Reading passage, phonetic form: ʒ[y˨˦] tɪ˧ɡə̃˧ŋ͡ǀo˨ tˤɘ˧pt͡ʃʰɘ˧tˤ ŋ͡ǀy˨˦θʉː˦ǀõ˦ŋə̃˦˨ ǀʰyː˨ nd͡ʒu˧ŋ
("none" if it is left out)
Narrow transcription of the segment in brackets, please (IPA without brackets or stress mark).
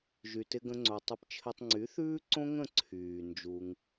y˨